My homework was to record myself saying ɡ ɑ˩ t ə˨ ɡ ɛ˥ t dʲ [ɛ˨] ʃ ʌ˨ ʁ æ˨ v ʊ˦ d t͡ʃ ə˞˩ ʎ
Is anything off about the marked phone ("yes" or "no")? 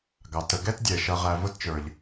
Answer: yes